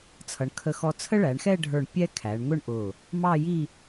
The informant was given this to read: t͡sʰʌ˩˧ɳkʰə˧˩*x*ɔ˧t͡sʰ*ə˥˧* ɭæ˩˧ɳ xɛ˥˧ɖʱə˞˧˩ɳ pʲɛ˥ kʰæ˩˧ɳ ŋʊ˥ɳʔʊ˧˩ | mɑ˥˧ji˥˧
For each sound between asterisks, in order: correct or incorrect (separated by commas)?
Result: correct, incorrect